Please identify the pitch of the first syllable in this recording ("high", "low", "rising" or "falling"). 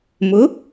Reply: rising